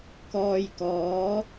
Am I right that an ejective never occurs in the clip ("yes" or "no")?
yes